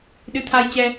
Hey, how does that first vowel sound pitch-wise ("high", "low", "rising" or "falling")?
rising